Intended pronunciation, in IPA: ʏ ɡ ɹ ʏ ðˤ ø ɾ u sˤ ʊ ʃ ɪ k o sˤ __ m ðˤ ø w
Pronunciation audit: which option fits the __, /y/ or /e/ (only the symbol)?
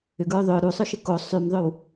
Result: y